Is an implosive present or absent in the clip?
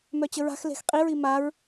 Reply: absent